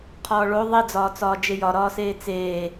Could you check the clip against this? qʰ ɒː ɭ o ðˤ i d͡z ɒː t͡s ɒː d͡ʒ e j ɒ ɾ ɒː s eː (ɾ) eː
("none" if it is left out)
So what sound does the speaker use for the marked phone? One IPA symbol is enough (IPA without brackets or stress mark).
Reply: t͡s